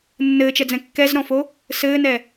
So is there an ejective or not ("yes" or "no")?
no